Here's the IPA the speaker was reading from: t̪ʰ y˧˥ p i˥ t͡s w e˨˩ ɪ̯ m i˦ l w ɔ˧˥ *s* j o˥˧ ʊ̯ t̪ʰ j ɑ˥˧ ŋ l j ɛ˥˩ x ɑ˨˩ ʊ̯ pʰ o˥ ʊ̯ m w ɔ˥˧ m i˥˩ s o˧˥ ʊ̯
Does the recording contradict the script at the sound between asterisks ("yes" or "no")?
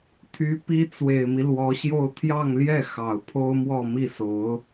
yes